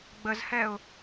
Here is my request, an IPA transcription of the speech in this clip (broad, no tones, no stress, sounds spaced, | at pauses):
ɡ͡b ə z h ɛ ʊ̯